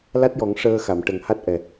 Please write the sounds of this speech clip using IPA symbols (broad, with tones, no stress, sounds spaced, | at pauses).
l a˦˥ t̚ j ɔ˨˩˦ ŋ ʂ əː˧ x a˨˩˨ m ʈ ə˨˩ ŋ h a˦˥ t̚ ʔ ɛ˨˩